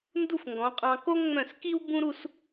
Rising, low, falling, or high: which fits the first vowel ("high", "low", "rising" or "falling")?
falling